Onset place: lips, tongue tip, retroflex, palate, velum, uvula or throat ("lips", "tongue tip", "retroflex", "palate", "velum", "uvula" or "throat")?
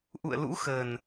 throat